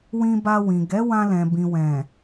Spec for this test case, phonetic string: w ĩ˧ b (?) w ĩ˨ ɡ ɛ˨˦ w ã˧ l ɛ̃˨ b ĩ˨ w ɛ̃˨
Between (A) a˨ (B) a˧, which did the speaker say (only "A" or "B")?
B